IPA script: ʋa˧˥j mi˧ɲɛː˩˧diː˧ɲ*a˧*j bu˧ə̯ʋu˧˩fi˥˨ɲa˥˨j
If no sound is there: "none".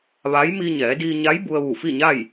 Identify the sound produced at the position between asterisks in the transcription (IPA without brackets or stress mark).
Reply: a˧˥